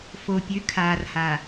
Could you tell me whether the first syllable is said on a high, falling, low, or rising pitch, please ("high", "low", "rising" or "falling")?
low